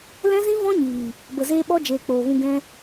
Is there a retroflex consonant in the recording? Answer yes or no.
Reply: no